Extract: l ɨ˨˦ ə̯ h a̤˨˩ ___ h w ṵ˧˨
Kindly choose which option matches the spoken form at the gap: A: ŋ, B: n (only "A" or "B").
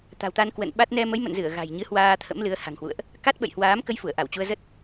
A